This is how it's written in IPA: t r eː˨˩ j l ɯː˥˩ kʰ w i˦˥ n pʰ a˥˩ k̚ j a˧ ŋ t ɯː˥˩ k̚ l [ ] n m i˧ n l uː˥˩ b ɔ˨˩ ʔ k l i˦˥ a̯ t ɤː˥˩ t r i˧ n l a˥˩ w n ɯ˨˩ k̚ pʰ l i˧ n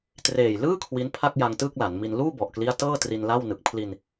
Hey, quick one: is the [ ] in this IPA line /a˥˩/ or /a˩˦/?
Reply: a˩˦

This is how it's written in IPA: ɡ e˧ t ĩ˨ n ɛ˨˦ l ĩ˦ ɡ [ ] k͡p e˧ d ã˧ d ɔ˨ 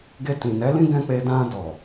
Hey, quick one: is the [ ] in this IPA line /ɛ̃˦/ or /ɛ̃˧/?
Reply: ɛ̃˦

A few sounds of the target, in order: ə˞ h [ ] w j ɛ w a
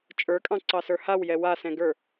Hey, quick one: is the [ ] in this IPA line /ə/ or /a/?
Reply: a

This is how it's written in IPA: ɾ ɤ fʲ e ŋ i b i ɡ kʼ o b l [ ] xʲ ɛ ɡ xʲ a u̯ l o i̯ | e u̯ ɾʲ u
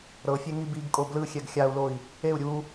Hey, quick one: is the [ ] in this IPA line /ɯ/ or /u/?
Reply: ɯ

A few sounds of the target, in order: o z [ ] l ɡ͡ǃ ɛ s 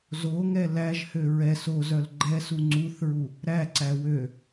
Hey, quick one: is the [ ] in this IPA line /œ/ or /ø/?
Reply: œ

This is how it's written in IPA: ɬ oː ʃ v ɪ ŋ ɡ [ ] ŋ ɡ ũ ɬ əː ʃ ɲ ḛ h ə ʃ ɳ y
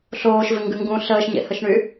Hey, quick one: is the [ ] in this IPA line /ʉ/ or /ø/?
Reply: ʉ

